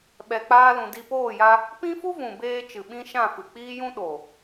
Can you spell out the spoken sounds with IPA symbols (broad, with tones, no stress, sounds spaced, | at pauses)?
ɓ ɛ˧ k͡p aː˦ l ũ˧ d i˧ p oː˦˨ j a˧ | p ĩ˦ f u˦ v ũ˨ b eː˧ t͡ʃ ɨ˨ ɓ ĩ˧ ʃ ã˦˨ f ɨ˨ k͡p iː˦ j ũ˦ ɗ o˨